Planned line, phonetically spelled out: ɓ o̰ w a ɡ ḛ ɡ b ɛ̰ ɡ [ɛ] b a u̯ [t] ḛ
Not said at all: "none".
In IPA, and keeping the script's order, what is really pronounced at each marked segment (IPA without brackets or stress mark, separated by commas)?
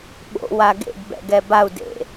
ɛ, d